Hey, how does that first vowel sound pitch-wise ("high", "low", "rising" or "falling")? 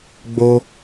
high